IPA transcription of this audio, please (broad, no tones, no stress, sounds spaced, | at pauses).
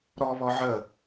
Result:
ɾ ɔ β ɔ ʕ ə